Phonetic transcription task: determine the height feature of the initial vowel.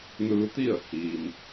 high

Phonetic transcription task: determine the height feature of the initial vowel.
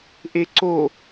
mid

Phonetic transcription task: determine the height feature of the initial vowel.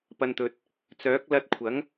low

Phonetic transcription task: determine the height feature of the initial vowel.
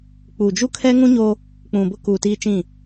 high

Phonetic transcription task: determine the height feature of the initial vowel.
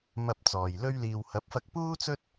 low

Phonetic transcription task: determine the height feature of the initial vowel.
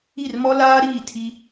high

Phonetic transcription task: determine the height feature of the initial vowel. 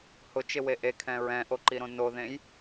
high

